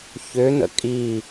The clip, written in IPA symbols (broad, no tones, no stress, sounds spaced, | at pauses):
ç ø n̪ ə̰ kʼ i